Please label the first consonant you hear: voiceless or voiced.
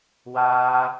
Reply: voiced